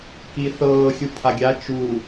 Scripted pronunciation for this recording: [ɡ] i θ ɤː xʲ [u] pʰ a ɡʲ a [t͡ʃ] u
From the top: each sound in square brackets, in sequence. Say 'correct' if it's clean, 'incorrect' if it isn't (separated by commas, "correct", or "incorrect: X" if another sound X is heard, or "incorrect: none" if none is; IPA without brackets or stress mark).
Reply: incorrect: k, correct, correct